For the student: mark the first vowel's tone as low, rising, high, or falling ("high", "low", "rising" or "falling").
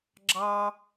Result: high